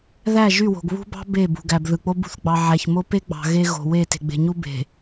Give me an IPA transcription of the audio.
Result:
ð æ˦˨ ʒ y˦˨ w o̤˨ ɡ β ṳ˦ b ɑ̤˦ b e˦˨ b ṳ˨ ɡ æ˨ b ð ɯ˨ k͡p o˦ b ṳ˦ θ ɡ͡b ɑ˨ ʕ æ˨ ç m o˦ p e˦ ɡ͡b ɑ̤˨ ɣ e˦ ɣ o̤˨ w e˦˨ t e̤˨ ɡ͡b e̤˨ ɲ u˦ b e̤˨

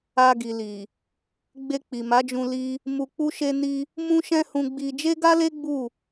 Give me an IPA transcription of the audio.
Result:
a˧ ɡ i˨ l i˨ | ɡ͡b e˧ k͡p i˨ m a˨˦ d͡ʒ ũ˧ l i˦ | m u˧ k͡p u˦ ʃ e˦ n i˧ | m ũ˦ ʃ ɛ̃˦ h ũ˧ ɡ͡b i˧ d͡ʒ e˦ ɡ a˦ l e˦ ɡ͡b u˦˨

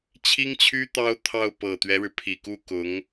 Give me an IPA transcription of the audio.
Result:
t͡ɕʰ i˥ ŋ t͡ɕʰ y˥ t̪ ɑ˥ ʊ̯ t̪ʰ ɑ˥˩ ʊ̯ p ɤ˨˩ t̪ ɥ ɛ˦ ɻ ɻ̩˩ pʰ i˨˩ k u˥˩ k ʊ˧˥ ŋ

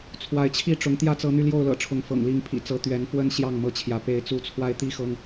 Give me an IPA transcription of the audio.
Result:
t͡sʰ w a˨˦ ɪ̯ t͡ɕʰ i˥˨ ʈ͡ʂ ʊ˨˦ ŋ t̪ j ä˦ t͡s ɤ˨˦ n̪ y˧ l j o˥˨ ʊ̯ l ɤ̰˨˩ ʈ͡ʂʰ ʊ˨˦ ŋ f ɤ̰˨˩ ŋ l i˨˦ ŋ pʰ ḭ˨˩ t͡s ɤ˨˦ t̪ ɥ ɛ˨˦ n f w ə˦ n ɕ j ɑ˥˨ ŋ m ɤ˦ t͡ɕʰ j ä˨˦ p e˨˦ ɪ̯ t͡s u˨˦ t͡sʰ w a˧ ɪ̯ t̪ i˦ x ɤ˦ ŋ

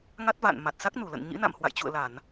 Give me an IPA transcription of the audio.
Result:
ŋ a˦˥ t̚ v a̰˧˨ n m a˨˩ t̚ s a˦˥ k̚ n u˧˩ l ə̰˧˨ n ɲ ḭ˧˥ n a̰˧˨ m h w a̰˧˨ j t͡ɕ ṵ˧˨ ə̯ l a˧˩˨ n

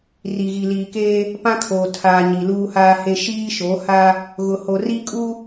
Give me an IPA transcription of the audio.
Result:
r i˨ ɣ i˨ l iː˨ k eː˦ | p ã˦ kʰ oː˨ tʰ aː˨ ɲ i˨ l uː˦ h aː˦ h e˦ ʃ iː˦ ʃ o˨˦ h a˦ | ɣ ʊ˨ h o˨ r i˦ kʼ u˦

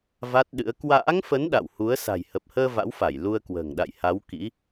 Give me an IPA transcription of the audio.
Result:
v a˦˥ t̚ ɗ ɨ̰˧˥ ə̯ k w a̰ː˧˥ ŋ f ə˨˦ n ɗ a̰˧˨ w h u˨˦ ə̯ s a̤˨˩ j h ə˨˩ p̚ h əː˧ v a̰˧˥ w f a˧˩ j l u˧ ə̯ k w ə̤ː˨˩ ŋ ɗ a̰˧˨ j h a˨˦ w k ḭ˧˥

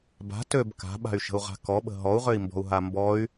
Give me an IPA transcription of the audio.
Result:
b a̤ t ø b k a̤ ɓ a̤ y̯ ʃ ə̤ u̯ ʁ a̤ k ɔ ɓ ə̤ ɦ ɔ u̯ ʁ ø i̯ m b ɔ̤ u̯ ɦ a m b ɔ y̯

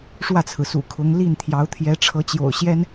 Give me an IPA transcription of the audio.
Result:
ʂ w ä˥˩ t͡sʰ ɹ̩˩ s ṵ˨˩ kʰ ʊ˧˥ ŋ l i˥˩ n t̪ʰ j ɑ˧˥ ʊ̯ t̪ʰ j ɛ˧˥ ʈ͡ʂʰ ɤ˧˥ t͡ɕ j o̰˨˩ ʊ̯ ɕ j ɛ˥ n

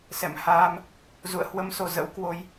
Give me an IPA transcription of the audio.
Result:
s ɛ̰˧˨ m h aː˧ m | z ṵ˧˨ ə̯ h w ə˧ m s o˧˩ z ə̰˧˥ w k w o˨˦ j

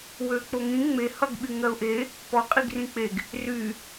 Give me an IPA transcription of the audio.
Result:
w ø k͡p o ŋ ĩ ŋ͡m e h ʌ ɡ ɓ y ŋ ɜ ʊ̯ ʔ e | p ɔ qʼ i ɡ r ĩ k͡p e ɡ | r y

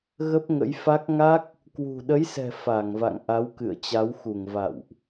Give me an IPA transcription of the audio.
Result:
ɣ ə˦˥ p̚ ŋ ə̰˧˥ j f a˦˥ k̚ ŋ a˦˥ k̚ | k w ṳ˨˩ ɗ ə˨˦ j s ɛ̤˨˩ f a˧˩ ŋ v a̰˧˨ ŋ ʔ a˨˦ w k ɨ̰˧˨ ə̯ t͡ɕ a˨˦ w x u˧˩ ŋ v a̰˧˨ w ʔ

